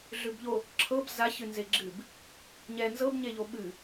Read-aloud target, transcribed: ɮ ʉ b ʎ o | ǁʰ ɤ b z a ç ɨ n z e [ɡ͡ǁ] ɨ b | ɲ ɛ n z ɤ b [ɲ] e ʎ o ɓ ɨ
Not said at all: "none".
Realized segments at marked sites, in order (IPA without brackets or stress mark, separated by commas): ɡ͡ǁ, ɲ